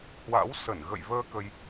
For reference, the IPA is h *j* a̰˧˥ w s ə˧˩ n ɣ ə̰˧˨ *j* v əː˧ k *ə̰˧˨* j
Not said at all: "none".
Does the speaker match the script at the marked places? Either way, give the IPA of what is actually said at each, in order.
w, j, ə˧

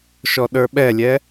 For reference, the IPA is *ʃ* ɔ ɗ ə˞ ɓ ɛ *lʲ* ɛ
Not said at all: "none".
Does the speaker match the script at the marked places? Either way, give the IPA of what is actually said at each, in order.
ʃ, lʲ

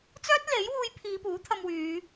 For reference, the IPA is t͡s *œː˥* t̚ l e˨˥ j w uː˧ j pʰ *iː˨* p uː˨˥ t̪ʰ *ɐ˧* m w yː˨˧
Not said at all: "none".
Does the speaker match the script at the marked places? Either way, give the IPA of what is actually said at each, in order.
œː˥, iː˨˧, ɐ˧

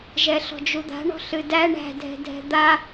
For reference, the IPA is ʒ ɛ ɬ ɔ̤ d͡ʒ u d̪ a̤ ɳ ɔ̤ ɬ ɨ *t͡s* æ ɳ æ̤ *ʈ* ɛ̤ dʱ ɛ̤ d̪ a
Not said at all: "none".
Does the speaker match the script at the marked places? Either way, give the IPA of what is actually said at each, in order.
d, dʱ

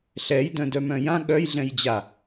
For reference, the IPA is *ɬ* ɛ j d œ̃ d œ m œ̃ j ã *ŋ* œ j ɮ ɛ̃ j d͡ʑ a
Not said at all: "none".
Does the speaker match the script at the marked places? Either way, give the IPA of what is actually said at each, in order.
ɬ, ɠ

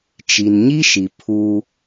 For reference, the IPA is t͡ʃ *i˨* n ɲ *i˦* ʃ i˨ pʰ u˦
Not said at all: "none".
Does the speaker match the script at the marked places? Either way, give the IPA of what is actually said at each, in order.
i˨, i˦

